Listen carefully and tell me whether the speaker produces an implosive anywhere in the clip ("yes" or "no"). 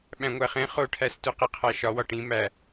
yes